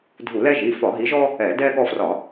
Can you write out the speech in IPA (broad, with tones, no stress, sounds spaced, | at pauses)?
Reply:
dʱ u˧˩˧ l ɛ˦ ʒ i˩˧˩ f ɒ˧˩˧ ɦ i˨˦ ʒ ɔ˦ | ɛ˧˩˧ d ɛ˦ ɠ ɔ˦ f r ɒ˧˩˧